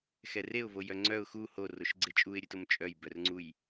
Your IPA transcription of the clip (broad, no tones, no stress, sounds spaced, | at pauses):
x ɛ r e ʊ̯ v o j œ ŋ͡ǀ œ ʊ̯ x u h o r o ʃ ɡ͡ǀ e t͡ʃʼ u ɪ̯ ɾʲ ʉ t o m t͡ʃʼ œ j b œ r ŋ͡ǀ u j